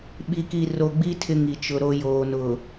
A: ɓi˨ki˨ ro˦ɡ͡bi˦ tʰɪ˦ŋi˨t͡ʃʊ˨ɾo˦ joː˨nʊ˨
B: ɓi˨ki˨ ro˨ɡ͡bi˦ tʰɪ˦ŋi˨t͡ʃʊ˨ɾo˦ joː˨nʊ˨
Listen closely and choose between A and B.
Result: B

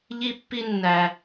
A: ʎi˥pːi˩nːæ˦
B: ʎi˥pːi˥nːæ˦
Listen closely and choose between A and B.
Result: B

